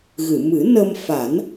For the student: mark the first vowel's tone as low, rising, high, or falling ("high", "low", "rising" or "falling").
low